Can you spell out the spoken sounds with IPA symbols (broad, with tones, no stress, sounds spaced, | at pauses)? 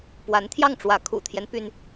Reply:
p w a˧˥ n t̪ʰ j ɑ˥˩ ŋ ʈ͡ʂ w ä˧˥ kʰ ṵ˨˩ t̪ʰ j ɛ˦ n p y˥ n